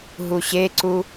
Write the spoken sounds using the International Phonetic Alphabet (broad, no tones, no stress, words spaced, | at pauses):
ɦuɕeǀu